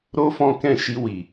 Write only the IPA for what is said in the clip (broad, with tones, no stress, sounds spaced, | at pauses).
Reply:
ɾ o˦ f ɔ̃˦ k ɛ̃˦˨ ʃ i˧ w i˨